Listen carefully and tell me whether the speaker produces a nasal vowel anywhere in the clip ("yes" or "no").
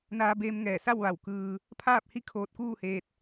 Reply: no